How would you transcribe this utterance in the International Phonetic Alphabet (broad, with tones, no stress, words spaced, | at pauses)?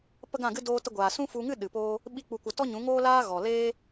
pə˦ɡã˦˨ɡɨ˦ doː˧tə˧ɡʷaː˨ sũ˦fu˧ŋɨ˦ ɗɨ˨poː˦ | ɓi˦k͡pu˧kʷə˧ tɔ˦ɲũ˨˦ŋoː˦laː˦ ɣɔ˨leː˦